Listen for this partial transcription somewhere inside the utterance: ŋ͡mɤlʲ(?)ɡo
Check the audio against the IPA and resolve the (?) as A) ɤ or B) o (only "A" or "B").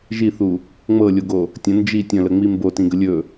B